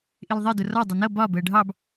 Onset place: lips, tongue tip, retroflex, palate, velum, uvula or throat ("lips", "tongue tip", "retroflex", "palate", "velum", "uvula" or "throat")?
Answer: throat